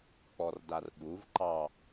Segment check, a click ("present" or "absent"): present